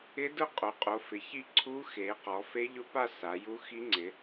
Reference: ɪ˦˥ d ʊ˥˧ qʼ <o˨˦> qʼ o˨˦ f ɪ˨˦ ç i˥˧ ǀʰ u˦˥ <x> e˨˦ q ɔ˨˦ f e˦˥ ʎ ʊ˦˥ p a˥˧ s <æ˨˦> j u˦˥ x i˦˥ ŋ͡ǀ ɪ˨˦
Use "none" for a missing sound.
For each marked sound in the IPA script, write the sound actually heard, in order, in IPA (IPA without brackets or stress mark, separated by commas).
o˨˦, x, a˨˦